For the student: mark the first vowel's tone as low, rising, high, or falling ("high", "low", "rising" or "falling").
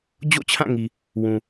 falling